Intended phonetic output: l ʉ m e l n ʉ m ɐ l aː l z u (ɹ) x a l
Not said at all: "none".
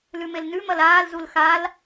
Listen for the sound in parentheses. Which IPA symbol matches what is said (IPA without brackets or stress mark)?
l